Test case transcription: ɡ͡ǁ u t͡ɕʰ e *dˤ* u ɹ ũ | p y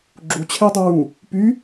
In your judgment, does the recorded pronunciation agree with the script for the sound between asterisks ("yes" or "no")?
yes